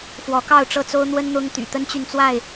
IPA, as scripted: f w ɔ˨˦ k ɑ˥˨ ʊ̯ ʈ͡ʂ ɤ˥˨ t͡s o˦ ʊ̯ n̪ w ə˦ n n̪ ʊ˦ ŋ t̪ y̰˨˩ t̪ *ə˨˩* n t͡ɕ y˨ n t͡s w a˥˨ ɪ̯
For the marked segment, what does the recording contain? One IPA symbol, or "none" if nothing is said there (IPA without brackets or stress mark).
ə˦